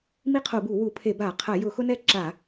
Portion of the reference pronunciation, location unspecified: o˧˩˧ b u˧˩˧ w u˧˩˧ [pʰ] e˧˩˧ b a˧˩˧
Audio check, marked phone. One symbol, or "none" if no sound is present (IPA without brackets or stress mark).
pʰ